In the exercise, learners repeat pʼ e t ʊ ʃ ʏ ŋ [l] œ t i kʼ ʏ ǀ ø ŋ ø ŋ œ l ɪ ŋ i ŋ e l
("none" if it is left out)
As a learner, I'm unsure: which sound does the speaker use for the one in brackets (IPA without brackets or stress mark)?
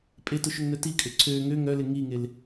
n